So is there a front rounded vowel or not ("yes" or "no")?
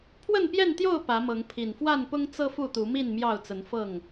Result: no